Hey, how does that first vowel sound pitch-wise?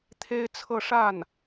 high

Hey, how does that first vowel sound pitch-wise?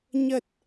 low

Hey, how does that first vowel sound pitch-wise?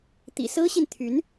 low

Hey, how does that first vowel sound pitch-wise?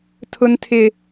high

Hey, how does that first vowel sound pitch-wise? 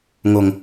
low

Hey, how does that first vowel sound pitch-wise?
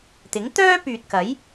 rising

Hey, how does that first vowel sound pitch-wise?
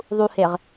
low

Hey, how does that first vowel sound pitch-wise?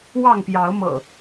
falling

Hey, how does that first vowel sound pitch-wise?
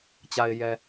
low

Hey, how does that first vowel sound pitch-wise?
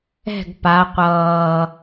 falling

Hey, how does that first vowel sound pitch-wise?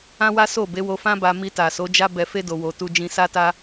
high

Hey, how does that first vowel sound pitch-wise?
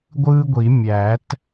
high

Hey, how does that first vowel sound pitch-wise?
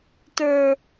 high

